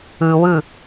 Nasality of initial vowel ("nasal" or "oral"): oral